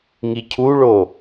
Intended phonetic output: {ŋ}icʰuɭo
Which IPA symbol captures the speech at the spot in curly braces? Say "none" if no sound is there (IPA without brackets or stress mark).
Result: ŋ